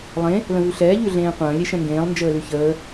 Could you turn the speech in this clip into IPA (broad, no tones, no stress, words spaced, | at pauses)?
lˠẽ | lə̃vʉɬɛː ʎʉɮẽːqʷə̃ː lʲeʃɛ̃ŋɡẽːlˠ nd͡ʒəːlʉçəː